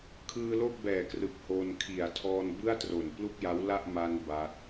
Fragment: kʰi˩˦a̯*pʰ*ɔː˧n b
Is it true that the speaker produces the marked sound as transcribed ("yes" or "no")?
no